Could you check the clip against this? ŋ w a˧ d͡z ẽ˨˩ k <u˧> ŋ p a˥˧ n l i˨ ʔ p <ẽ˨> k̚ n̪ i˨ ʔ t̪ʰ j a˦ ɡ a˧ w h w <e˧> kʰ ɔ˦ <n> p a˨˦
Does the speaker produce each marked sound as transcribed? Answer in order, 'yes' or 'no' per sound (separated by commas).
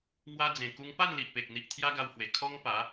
yes, no, no, no